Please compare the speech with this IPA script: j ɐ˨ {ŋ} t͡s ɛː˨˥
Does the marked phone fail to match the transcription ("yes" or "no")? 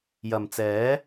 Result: yes